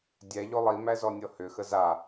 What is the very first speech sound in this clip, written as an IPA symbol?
dʲ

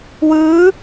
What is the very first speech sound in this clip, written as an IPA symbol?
w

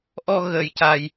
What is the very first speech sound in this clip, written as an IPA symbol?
ʔ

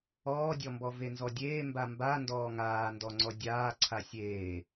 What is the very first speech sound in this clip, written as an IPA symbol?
ɔː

